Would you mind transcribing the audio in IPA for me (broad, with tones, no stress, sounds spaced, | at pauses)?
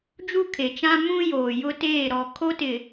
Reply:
d͡ʒ u˦ kʰ e˨ t͡ʃ ã˦ m ũ˦ j oː˨ j ʊ˦ t eː˦˨ ɾ ɔ˨ kʰ o˦ t ɪ˨